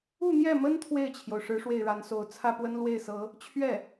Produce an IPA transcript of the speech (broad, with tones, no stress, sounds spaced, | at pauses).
u˥˧ n̪ j ɛ˥˩ m ə˥ n t̪ʰ w e˥˩ ɪ̯ t͡ɕʰ j o˩ ʊ̯ ʂ ɻ̩˧˥ ʂ w e˥˩ ɪ̯ ɻ a˧˥ n s o˧˥ ʊ̯ t͡sʰ ä˥˩ p w ə˥ n l w e˥˩ ɪ̯ s ɤ˧˥ | t͡ɕʰ ɥ ɛ˥˩